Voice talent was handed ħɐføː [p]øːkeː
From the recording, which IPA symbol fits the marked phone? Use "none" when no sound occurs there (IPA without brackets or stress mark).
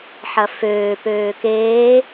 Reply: p